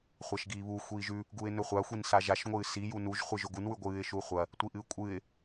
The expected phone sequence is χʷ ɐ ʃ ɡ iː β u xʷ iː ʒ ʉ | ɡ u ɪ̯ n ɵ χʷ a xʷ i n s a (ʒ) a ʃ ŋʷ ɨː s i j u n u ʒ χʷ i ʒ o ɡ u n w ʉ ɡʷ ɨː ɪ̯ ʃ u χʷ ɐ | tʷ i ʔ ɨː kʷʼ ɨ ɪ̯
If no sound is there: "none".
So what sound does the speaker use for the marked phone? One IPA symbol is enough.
ʒ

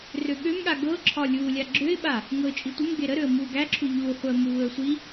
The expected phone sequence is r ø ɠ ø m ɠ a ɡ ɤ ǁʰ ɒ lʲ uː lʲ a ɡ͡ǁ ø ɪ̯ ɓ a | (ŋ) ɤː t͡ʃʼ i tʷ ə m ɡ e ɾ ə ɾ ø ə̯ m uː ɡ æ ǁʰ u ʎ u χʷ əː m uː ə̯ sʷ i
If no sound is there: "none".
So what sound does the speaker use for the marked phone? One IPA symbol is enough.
ŋ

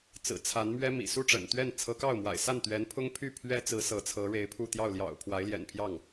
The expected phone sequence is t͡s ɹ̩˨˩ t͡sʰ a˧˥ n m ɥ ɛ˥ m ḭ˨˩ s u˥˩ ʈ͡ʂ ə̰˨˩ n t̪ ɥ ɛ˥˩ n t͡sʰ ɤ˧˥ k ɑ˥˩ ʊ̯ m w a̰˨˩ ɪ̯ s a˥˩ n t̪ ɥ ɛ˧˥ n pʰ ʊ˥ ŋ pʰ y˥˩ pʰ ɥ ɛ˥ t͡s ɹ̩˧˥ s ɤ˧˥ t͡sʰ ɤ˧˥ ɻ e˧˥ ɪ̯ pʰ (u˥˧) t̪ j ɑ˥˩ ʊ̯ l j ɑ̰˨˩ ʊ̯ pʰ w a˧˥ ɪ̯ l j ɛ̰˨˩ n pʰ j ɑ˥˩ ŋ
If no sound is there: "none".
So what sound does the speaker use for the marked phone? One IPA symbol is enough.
u˥˧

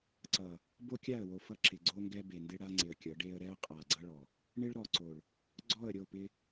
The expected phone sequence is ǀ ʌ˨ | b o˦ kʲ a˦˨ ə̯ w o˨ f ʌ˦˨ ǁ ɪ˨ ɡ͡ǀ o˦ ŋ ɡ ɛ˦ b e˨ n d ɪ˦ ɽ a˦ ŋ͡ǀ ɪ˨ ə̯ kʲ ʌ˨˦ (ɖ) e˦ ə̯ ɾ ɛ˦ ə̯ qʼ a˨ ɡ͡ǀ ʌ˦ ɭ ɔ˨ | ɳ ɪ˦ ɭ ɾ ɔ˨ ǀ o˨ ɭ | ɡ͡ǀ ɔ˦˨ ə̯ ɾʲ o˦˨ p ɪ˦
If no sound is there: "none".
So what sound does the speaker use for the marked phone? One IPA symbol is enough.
ɖ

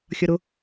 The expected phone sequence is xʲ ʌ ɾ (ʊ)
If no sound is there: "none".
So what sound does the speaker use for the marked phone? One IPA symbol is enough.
ʊ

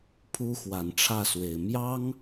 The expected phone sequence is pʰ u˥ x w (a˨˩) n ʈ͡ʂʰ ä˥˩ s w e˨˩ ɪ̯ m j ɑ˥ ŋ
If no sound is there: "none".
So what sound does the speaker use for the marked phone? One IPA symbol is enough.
a˨˩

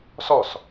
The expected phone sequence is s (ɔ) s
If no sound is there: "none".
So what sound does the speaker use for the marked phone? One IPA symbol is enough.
ɔ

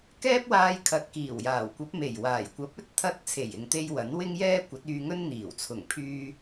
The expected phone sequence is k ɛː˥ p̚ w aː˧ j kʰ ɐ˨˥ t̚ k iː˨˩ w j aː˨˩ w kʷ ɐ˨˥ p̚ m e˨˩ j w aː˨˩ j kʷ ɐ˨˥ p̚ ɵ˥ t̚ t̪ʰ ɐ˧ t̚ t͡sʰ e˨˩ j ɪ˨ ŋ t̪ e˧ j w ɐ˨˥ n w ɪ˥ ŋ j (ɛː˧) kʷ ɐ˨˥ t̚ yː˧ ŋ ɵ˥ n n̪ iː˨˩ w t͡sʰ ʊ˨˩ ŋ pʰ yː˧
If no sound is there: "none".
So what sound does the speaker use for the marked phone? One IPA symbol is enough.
ɛː˥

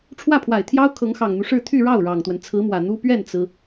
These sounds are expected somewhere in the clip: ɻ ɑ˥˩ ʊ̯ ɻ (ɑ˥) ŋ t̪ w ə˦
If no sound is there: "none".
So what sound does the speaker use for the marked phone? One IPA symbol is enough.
ɑ˨˩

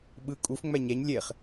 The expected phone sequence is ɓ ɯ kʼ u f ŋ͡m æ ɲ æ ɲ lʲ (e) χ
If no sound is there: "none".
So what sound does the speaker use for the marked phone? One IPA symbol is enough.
e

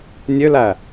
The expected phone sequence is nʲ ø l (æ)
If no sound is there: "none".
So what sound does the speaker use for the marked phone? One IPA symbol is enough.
æ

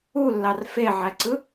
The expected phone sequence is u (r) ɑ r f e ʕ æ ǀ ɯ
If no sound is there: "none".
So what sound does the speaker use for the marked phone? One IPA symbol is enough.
lː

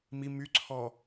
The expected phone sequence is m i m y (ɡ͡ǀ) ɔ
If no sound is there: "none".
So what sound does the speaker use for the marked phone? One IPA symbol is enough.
ǀʰ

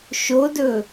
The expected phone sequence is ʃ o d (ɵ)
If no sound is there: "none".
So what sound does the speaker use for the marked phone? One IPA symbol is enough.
ɵ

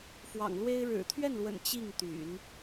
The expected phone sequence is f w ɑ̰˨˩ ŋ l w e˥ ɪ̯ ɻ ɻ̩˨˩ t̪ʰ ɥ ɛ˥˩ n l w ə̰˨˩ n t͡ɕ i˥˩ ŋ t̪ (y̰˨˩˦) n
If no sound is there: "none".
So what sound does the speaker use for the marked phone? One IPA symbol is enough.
y̰˨˩˦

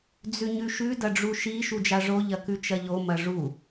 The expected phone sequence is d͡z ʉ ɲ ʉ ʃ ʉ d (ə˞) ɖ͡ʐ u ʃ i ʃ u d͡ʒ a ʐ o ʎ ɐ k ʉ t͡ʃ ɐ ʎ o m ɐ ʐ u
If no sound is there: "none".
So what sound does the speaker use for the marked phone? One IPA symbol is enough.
ɐ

